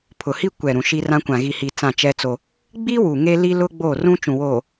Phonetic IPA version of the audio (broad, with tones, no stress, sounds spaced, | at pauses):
pʰ ʊ˨ h i˦ kʷ ɛ˨ ɾ ũ˨ ʃ i˦ r ã˦ kʷ ã˨ ɣ i˨ h i˨ t͡s ã˦˨ t͡ʃ ɛ˦ t͡s o˦ | ɡ͡b i˦ w u˨ ŋ e˦ l i˦ l ʊ˦ ɡ͡b oː˦˨ r ũ˦ t͡ʃ ũ˨ w oː˨